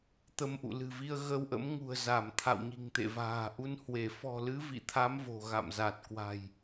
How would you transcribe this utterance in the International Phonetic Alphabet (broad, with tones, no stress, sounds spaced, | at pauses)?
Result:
t̪ ə˧ m ʔ ṵ˧˨ l ɨ̤˨˩ v i˧ ə̯ ɣ ə˧ w ʔ ə̰˧˥ m ŋ ṳ˨˩ ə̯ z a˧˩ m t̪ʰ a̰˧˨ w ɲ i̤˨˩ ŋ t̪ ḛ˧˨ v a̤ː˨˩ ʔ u˧ n h w e˧˩ f ɔ̤˨˩ l ɨ˨˦ v ḭ˧˨ t̪ʰ a˨˦ m v o̤˨˩ ɣ a̰˧˨ m z a˨˩ t̚ k w a̤˨˩ j